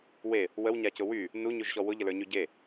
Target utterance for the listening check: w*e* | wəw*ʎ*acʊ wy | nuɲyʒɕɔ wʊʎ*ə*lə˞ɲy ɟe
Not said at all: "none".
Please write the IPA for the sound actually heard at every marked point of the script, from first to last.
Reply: e, ɲ, ə

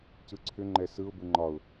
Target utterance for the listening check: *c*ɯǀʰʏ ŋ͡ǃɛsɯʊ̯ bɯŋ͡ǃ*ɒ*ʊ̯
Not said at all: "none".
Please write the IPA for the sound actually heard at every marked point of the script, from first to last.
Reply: c, ɒ

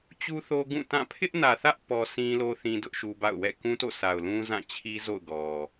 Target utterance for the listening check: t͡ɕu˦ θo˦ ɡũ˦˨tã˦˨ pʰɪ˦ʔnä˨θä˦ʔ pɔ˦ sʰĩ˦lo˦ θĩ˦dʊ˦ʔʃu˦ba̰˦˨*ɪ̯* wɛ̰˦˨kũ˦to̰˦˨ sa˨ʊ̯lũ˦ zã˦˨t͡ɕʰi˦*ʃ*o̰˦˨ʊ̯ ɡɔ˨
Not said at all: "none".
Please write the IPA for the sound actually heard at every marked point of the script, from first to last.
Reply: ʊ̯, z

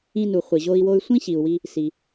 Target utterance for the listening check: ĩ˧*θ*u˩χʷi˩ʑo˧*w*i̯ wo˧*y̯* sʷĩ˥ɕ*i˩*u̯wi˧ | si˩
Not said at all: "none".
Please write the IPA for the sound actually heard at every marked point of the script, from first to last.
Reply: n, none, y̯, i˩

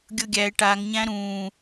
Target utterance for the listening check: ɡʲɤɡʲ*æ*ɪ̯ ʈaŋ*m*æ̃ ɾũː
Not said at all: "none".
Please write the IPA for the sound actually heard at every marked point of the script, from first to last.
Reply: æ, ɲ

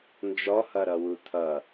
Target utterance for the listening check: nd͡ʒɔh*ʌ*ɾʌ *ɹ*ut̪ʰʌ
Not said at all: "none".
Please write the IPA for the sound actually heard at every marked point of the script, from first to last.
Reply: ʌ, w

